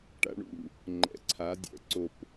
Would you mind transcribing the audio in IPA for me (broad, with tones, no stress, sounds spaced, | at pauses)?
ʈ a̰˧ ɳ ṵ˧˩ | ŋ͡ǃ ɛ̰˨˥ ǀʰ a˨˥ dʲ ɛ̰˨˥ ǀ o˧˩ p